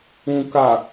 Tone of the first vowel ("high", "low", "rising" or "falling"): low